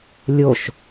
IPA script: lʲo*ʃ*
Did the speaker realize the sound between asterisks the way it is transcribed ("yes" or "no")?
yes